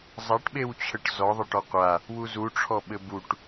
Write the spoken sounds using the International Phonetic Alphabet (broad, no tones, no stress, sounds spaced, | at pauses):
zˤ a ʈ ɓ e w t͡ɕʰ ə ʈ z ɔ ðˤ ɘ ʈ ɔ qʷ a | w u z u ʈ͡ʂʰ ɔ ɓ ɘ b u ʈ